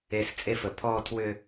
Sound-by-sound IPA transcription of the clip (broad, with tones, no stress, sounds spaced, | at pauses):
e˨˦ s t͡sʼ e˦ f ə˨˩ pʰ ɔː˦˨ tʰ w ʏ˦˨